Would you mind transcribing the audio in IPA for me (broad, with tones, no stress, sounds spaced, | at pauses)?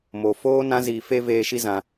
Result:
m o˧ f oː˦ n ã˦ z iː˧ f e˦ v eː˧ ʃ i˦ z ã˧